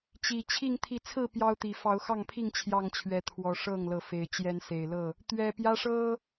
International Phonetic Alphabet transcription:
t͡ɕ i˨˩ t͡ɕʰ i˥˨ ŋ t̪ʰ i˨˦ t͡sʰ ɹ̩˥˨ p j ɑ˦ ʊ̯ t̪ i˨˩ f ɑ˨˦ ʊ̯ x ɑ˥˨ ŋ pʰ i˥˨ ŋ t͡ɕʰ j ɑ˥˨ ŋ t͡ɕʰ ɥ ɛ˨˦ t̪ʰ w ɔ˨˩ ʂ ɤ˥˨ ŋ l ɤ˨˦ f e˨˩ ɪ̯ t͡ɕ j ɛ˨˦ n s e˨˩ ɪ̯ l ɤ˥˨ | t̪ ɥ ɛ˨˩ p j ä˦ ʂ ɤ˦

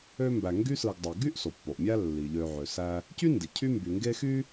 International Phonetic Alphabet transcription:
ø˥ m b æ˨ ŋ ɡ y˦ s ɯ˨ ɡ dˤ ɯ˩ ɡ y˥ ʔ s o˩ pː o˩ ʔ mʲ æ˦ lː i˩ ʎ ø˨ ʕ ø˩ s æ˦ | c y˥ n d i˩ cʰ y˦ m b y˩ ŋ ɡ e˦ x y˥

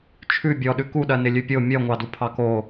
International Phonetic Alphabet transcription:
t͡ʃʰ ʉ bʲ ɔ ɗ ʉ k u ɗ ɜ n ɪ lʲ ʉ pʲ o mʲ ɜ ŋʷ ɑ d u pʰ ɑ k o

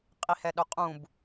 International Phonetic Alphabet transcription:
qʼ i h ɛ ɗ œ qʼ ũ b

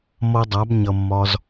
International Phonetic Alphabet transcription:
m ʌ˧ dˤ a˨˦ b ɲ ʌ˨ mː ɒ˧ z

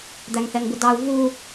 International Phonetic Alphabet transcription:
d̪ æ ŋ θ ɛ ŋ b ʊ d ɑ u̯ v u

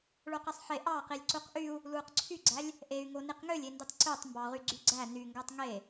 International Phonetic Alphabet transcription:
ɭ o q e sˤ ħ e ʔ ɑ q i lʲ ǀ u q ʔ y u̯ | l uː q ǀʰ y ɡ͡ǀ æ lʲ | ʔ e y̯ ŋ o n i q ŋ ø lʲ e n d i tˤ ǀ ø tˤ m b ɑ ʁ y ɡ͡ǀ y ɡ͡ǀ æ n y ŋ ɡ æ tˤ ŋ e

